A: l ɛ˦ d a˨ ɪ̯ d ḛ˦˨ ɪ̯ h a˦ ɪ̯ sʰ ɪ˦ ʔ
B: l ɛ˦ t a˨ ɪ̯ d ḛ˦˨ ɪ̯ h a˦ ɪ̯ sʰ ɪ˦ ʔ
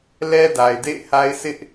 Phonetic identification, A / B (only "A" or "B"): A